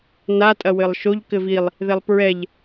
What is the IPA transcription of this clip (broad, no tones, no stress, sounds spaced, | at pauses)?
n a tʼ ɐ w ɘ lˠ ʃ o ʎ k ɘ v i lˠ | ð ɛ lˠ p ɹ ɛ ʎ